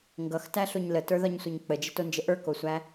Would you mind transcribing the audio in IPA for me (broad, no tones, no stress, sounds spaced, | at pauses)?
ŋ ɡ ʌ x t æ ɬ o ɲ l ə t ə˞ ð ɒ ɲ sʷ ʌ ɲ k͡p ə d͡ʒ ə t o n d͡ʒ ə ʔ ə˞ k o sʷ æ